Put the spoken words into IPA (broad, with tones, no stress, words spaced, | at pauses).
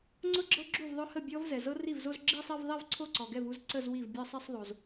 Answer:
ŋ͡ǀʊ˥˧ɡ͡ǁɤ˦˥ ɡ͡ǁu˥˩vðˤʊ˦˥hə˥˩ bʲɔ˦˥vzɛ˩ zɤ˦˥ri˥˩vzo˥˧z ɡ͡ǁi˥˧sˤɛ˥˧vðˤi˥˧v ǀʰo˥˩ǀɔ˩ɡɛ˥˩vu˥˧z ǀə˥˧zwi˥˩v bʲɤ˥˧sˤi˥˧sˤðˤo˩z